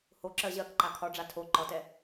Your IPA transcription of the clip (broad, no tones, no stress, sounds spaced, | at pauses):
h o ǁ ɜ ʑ ɜ k ǃ a kʰ ɒ ɖ͡ʐ a tʰ o ǃ ɒ t ɛ